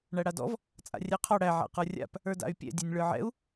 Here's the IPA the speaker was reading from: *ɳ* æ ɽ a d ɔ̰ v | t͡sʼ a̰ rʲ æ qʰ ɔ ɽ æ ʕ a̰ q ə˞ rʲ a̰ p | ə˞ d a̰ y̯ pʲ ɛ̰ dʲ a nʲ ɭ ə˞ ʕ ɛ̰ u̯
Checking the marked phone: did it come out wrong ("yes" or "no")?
no